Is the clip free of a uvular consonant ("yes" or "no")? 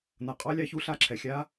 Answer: no